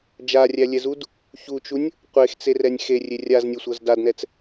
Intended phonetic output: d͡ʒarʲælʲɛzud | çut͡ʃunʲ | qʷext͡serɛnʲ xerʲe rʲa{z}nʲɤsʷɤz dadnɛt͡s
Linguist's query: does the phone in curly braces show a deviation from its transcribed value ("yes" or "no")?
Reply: no